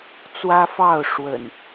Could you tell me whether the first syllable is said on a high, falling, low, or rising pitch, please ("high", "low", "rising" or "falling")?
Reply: high